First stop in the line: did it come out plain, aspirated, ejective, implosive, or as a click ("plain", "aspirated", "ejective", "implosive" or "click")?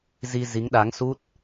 implosive